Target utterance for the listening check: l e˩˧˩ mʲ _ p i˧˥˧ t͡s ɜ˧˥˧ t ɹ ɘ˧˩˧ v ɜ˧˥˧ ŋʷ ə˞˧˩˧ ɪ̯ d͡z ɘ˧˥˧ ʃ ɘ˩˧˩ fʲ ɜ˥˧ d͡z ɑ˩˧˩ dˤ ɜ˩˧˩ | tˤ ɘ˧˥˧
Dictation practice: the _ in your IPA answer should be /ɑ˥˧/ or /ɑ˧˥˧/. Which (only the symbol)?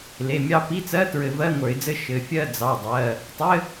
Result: ɑ˥˧